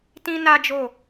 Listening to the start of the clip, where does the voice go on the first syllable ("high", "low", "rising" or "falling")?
high